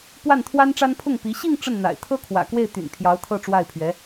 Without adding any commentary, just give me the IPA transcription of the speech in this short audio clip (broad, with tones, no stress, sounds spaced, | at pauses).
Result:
p w a˥˩ n t̪ʰ w a˥ n ʈ͡ʂ a˥ n pʰ ʊ˥˩ ŋ p i˧˥ ɕ i˥˧ ŋ ʈ͡ʂ ə˥˩ n n̪ a̰˨˩ ɪ̯ t̪ʰ ɤ˥ kʰ w ä̰˨˩ k w e˥˩ ɪ̯ t̪ y̰˨˩ n pʰ j ɑ˧˥ ʊ̯ t̪ʰ ɤ˥˧ ʈ͡ʂ w a˥˩ ɪ̯ pʰ ɥ ɛ˧˥